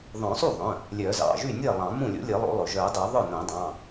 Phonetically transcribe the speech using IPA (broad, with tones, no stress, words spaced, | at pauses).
ðˤœ̃˨˩˦sˤu˥˩ðˤœ̃˩˧˩ | lʲœ˨˩˦zɑ̰˩˧˩ʒy˥˩nʲe˥˩ lˠɑ̃˨˩˦mũ˥˩lʲo̰˧˥ lʲe˨˩˦lˠo̰˨˩˦lˠɵ˩ʒœ˨˩˦ dˤy˨˩˦ðˤœ˥˩nõ˨˩˦dˤɑ̃˩˧˩